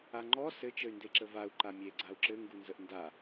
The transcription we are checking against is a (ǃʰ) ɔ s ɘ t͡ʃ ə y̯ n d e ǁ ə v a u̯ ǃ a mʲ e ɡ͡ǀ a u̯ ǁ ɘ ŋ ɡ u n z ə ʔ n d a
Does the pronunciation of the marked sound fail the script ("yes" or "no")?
yes